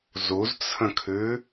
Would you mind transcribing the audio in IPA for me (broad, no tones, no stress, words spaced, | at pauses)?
zuzt͡sʰə̃kʰʉ